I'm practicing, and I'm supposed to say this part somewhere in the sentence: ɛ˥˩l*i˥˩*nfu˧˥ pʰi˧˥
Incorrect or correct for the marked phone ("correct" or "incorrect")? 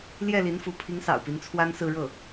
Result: incorrect